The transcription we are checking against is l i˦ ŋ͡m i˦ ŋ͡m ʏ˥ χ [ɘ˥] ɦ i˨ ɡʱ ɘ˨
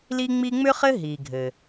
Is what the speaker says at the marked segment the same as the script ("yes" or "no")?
yes